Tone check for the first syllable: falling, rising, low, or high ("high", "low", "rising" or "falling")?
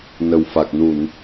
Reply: low